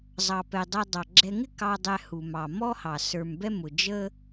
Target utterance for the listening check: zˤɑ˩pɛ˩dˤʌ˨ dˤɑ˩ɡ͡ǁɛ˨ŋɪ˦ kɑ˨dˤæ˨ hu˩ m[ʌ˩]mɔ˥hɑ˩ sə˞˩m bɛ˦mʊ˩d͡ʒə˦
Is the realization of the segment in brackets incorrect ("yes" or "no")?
yes